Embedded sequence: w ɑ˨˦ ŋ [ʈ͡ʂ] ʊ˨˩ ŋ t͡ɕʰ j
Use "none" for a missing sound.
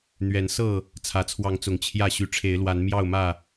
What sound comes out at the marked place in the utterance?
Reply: t͡s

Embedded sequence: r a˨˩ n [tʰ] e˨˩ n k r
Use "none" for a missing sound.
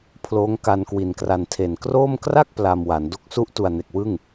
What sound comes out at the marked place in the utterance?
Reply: tʰ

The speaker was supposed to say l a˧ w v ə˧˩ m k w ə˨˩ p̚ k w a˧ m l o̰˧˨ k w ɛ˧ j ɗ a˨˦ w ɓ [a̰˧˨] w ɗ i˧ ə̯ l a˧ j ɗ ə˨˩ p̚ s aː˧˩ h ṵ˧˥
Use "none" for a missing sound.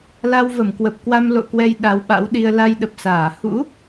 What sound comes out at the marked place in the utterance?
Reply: a̰˧˥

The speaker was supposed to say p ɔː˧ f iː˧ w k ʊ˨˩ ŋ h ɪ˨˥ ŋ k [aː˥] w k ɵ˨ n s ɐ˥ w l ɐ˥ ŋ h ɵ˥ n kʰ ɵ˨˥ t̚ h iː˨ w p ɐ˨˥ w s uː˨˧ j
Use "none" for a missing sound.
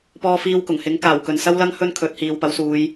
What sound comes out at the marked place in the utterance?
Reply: aː˨˩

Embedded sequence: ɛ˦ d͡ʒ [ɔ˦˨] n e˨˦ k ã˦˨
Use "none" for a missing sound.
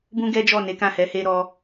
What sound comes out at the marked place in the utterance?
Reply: ɔ˦˨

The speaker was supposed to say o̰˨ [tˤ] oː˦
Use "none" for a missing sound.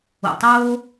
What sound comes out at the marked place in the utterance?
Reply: tˤ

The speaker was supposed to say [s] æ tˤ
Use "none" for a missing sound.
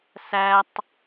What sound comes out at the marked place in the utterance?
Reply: s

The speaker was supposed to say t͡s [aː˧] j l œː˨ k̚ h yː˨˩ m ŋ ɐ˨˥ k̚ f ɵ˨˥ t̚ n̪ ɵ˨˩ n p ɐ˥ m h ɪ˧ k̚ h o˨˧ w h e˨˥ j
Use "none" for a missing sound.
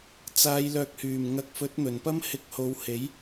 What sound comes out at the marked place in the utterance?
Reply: aː˨˧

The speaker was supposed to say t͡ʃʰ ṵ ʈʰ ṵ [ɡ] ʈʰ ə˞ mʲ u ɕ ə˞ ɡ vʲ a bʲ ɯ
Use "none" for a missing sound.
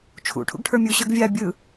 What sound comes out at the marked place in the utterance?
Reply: ɡ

